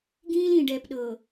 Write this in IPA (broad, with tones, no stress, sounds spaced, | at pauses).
ɡ ĩː˦ l ĩ˨ ɖ ɛː˨ p ɗ ɤː˨